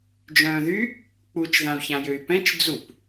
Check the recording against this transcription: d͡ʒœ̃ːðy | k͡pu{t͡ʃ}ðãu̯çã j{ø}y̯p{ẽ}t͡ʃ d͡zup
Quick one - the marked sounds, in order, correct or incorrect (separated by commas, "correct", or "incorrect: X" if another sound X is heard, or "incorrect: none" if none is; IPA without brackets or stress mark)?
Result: correct, correct, incorrect: ɛ̃